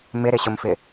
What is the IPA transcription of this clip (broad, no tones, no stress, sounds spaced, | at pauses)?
m ɪ ɾ ɪ ɕ ʊ m f ɪ